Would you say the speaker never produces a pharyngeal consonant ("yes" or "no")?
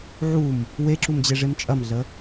no